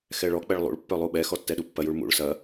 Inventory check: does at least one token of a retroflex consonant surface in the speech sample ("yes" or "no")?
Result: yes